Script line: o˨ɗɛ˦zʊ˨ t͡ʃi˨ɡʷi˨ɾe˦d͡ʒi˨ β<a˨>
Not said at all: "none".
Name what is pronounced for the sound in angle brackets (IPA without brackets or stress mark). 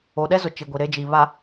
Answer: a˨